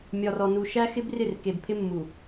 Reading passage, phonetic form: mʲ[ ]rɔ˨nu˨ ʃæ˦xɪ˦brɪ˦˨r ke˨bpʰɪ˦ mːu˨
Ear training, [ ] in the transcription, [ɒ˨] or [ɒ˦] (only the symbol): ɒ˨